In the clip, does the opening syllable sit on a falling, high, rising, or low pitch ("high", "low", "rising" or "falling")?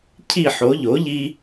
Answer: falling